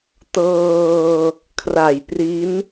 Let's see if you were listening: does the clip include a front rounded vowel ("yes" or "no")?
no